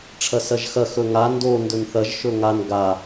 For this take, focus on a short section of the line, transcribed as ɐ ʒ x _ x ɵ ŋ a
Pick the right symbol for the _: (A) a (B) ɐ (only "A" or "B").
B